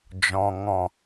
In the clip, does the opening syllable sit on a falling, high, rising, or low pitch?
low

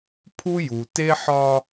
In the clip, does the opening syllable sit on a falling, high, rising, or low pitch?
high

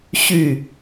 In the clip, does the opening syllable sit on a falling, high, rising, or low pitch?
falling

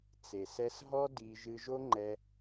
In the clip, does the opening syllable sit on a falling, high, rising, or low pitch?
low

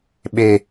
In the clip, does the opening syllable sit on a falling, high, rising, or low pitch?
low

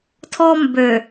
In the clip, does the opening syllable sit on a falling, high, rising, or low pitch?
high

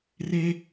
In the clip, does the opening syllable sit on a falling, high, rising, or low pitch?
high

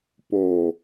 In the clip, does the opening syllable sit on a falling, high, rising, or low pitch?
low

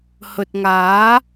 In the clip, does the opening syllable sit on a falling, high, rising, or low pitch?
low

